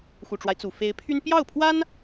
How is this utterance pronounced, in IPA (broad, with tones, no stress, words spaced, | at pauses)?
xu˨˩ʈ͡ʂwa˦ɪ̯ t͡su˨˩ fe˧˥ɪ̯pʰy˥n pjɑ˥˩ʊ̯pʰwa˥n